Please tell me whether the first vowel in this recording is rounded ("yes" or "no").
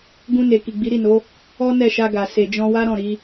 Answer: yes